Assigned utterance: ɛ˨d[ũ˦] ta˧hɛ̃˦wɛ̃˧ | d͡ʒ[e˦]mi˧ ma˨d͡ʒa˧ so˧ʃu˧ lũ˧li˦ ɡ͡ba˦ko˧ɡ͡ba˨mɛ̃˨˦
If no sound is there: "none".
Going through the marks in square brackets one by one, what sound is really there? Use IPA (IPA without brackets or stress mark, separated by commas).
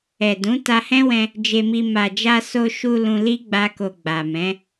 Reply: ũ˨˦, e˧